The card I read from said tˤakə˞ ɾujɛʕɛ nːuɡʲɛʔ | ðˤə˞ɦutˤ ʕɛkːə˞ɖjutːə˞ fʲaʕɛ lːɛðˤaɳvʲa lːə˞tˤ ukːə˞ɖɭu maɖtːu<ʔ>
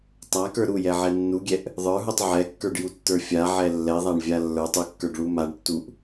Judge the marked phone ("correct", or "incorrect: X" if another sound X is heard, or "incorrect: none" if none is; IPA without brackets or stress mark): correct